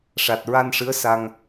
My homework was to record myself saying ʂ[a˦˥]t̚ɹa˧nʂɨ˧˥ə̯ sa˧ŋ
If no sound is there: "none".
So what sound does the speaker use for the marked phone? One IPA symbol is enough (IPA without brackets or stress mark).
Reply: a˨˩